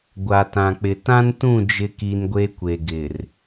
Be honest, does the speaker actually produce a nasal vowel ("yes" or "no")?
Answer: yes